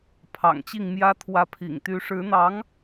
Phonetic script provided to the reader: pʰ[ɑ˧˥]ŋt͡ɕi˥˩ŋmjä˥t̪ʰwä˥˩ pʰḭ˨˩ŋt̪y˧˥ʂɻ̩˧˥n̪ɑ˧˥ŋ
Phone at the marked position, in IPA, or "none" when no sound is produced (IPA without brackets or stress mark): ɑ̰˨˩